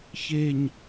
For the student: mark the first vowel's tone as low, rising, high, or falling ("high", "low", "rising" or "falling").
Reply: low